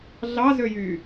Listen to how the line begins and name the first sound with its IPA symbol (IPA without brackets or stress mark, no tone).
ɮ